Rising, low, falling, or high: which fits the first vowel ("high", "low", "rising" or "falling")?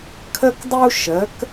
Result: high